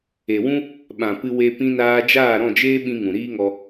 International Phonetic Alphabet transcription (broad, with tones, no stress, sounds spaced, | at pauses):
e˨ w ũ˦ | ɓ ã˨ p ɨ˧ w e˧ p ĩ˧ n aː˧ d͡ʒ aː˦˨ ɾ ɔ̃˦˨ d͡ʒ eː˦ ɓ ĩ˧ ŋ ũ˨ ɾ iː˦ ŋ ɔ˧